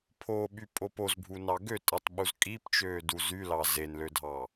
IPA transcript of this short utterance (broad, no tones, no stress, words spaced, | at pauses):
pʰoɓy pʼopoz bʱunɑɡøtʼɯtˤ ɓuzkʼipt͡ʃøː duzylɑ zenlødʱɑ